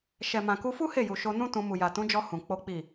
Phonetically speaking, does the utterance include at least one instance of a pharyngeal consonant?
no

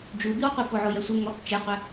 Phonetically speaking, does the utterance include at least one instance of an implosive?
no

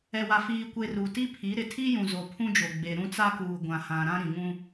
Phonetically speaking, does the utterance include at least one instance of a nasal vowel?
yes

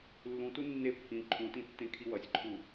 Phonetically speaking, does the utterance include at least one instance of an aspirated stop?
yes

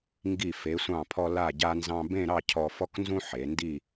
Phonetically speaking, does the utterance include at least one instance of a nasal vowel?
yes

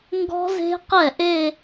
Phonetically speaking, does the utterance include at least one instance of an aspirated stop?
no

